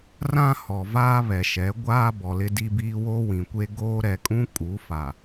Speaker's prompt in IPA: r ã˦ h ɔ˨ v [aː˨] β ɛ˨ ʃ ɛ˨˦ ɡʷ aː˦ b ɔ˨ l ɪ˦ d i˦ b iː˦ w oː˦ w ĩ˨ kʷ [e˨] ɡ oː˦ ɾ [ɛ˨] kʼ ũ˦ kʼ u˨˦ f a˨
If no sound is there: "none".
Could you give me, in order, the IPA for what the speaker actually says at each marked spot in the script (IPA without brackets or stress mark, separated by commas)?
aː˦, e˦, ɛ˨